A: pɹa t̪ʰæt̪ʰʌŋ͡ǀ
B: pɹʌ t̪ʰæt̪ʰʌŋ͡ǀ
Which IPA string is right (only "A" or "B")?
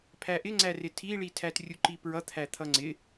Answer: B